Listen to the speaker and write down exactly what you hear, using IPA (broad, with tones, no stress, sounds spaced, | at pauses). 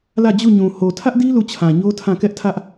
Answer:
l ä˦˨ d͡ʑ u˦˨ ɲ ũ˨ h o˨ tʰ ä˦ ʔ d i˦ l u˦˨ t͡ɕʰ ã˨ ɲ o˦ tʰ ã˦˨ k ɛ˦ ʔ tʰ ä˦ ʔ